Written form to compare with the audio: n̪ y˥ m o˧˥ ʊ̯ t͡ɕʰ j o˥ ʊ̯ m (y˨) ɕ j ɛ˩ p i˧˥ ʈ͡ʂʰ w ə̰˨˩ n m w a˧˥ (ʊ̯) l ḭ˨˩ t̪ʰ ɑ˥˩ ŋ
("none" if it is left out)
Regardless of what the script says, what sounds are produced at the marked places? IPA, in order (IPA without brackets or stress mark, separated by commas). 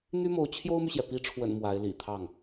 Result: y˨, ɪ̯